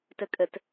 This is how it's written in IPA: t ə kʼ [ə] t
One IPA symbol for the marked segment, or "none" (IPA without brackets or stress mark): ə